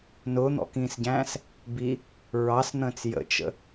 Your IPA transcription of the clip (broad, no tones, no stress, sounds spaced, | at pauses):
n ʊː n̪ ɔ̰ k ĩː s ɟ æ̃ː s | b i | ɹ ɑ s n̪ ə̃ː t͡s j ə̰ t͡ʃ ə̰